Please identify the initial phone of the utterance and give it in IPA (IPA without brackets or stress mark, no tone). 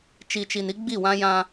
t͡ʃ